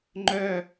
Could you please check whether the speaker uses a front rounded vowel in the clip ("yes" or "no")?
yes